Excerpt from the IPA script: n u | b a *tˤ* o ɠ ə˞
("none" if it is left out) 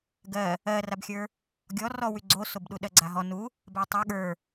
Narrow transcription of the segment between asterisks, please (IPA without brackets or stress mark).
tˤ